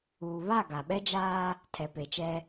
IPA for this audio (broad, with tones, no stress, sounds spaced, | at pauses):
uː˨ β a˦˨ ɡ a˨ ɓ ɛ˦ d͡ʒ aː˦ | tʰ ɛ˨ p e˨ t͡ʃ ɛ˦